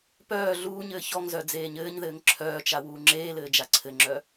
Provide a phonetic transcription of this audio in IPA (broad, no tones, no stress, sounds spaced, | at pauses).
p œː ɮ uː ɲ ɘː ç ɔ ŋ z œ d͡z eː ɲ ɘː ɲ ð ɘː ŋ ǁʰ œː t͡ʃ a w uː ŋ͡ǁ eː l ɘː d͡ʒ a ǀʰ ɘ ŋ͡ǁ œ